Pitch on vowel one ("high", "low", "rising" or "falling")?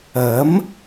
rising